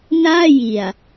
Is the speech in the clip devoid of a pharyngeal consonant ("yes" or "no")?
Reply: yes